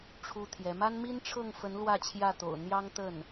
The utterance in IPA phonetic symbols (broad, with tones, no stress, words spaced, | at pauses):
ʈ͡ʂʰu˥t̪ʰjɛ˧˥ ma˥nmi˥nʈ͡ʂʰɤ˥˩ŋfə˧˥n lwä˥˧t͡ɕʰjä˥˩t̪o̰˨˩ʊ̯ n̪jɑ˥ŋt̪ə˥˩n